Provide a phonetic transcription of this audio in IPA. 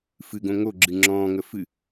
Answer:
f ɨ ɡ õ ŋ o ɡ͡ǁ ɨ ŋ͡ǁ ɔ̃ː ŋ ə f ɨ

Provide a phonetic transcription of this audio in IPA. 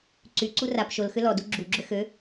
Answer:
ǀ y ǀ u r a p ʃ o l x ʏ l ɔ d u ɡ͡ǁ u ɡ͡ǁ ʏ x ø

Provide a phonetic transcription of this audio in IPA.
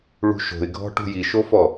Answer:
ɭ ṳ ʃ o̤ ɪ̯ ɡʱ ɔ̤ ʈ ṳ j i ʃ o f ɔ

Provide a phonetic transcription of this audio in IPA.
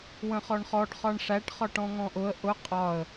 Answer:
w ə̃ χ ɔ ɳ χ ɔ ɖ χ ɒ ɳ ʂ æ ʈ χ ɒ ʈ ɔ̃ ŋ ɔ̃ ʔ ʊ ə̯ ʔ ʊ qʼ ɒ ə̯

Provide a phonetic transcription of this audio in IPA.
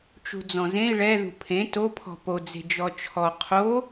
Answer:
t͡ʃ ṳ d͡z ɔ̃ z ẽ i̯ ɭ ɛ ð ṳ pʰ ẽ t o pʰ ɔ̤ p o d͡z e̤ d͡ʒ ɔ t͡ʃʰ ɔ qʰ o

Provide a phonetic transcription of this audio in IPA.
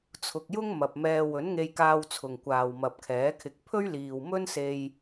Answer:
t͡sʰ ʊ˨ k̚ j ʊ˥ ŋ m ɐ˨ p̚ m ɛː˧ w ɵ˨˥ n ŋ e˧ j k aː˧ w t͡sʰ ʊ˨ ŋ kʷ aː˨ w m ɐ˨ p̚ kʰ ɛː˨˥ kʰ ɪ˧ k̚ pʰ ɵ˥ ɥ l iː˨ w m ɵ˥ n s e˧ j

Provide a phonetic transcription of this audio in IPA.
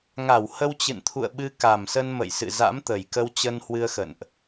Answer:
ŋ a˧˩ w h ə˧ w t͡ɕ ɨ̰˧˨ n t̪ʰ ṵ˧˨ ə̯ ɓ ɨ˧ k a˨˩ m s ə˧ n m ə̰˧˨ j s ɨ̰˧˨ z a̰˧˥ m t̪ ə˨˩ j k ə˧ w t͡ɕ ə˧ n h w ɨ˧ ə̯ x ə̰˧˨ n ʔ

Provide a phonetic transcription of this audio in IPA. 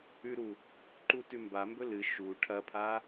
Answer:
ʉ ɾ u | ǃ u t ʉ m b a m b ɵ l ɨ ʃ u ʈʰ ɐ pʰ a

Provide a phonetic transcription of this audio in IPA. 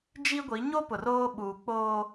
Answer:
d͡ʒ i˦ ɡʷ i˨˦ ɲ o˦ p ʊ˨ r oː˦ ɓ uː˨ k͡p oː˦

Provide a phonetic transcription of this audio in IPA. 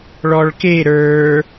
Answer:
ɭ ɔ ɭ k e ɾ ə˞

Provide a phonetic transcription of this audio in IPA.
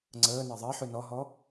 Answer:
ŋ͡ǀ əː n ɜ ðˤ ɜ ħ ʉ n ɔ ɦ ɔ

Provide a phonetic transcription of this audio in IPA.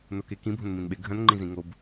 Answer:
n o k e k ĩ bʱ õ n m ĩ n ɓ e ɡʱ ɐ̃ n ŋ͡ǃ ĩ z ĩ ŋ o b

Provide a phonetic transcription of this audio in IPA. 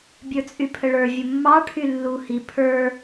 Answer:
bʲ ə˞ t͡sʼ y pʰ ə ɭ ə˞ vʲ ə mː ɑ ʈʰ y lː u h i pʰ ə˞

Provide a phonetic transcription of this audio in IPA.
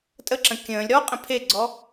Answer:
tʼ ə ǁ ə̃ kʲ ə̃ː lʲ ɾ ɔ qʼ ə̃ pʰ e ɡ͡ǀ ɔ

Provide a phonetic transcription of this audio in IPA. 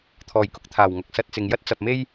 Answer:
t̪ʰ ɔː˨˩ j k ʊ˧ k̚ t̪ʰ aː˨˩ w ŋ ɐ˧ k̚ s ɐ˧ t̚ t͡s ɪ˨ ŋ j ɐ˥ t̚ t͡s ɐ˨ p̚ m e˥ j

